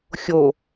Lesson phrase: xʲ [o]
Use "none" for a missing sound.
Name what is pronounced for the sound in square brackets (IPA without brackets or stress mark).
o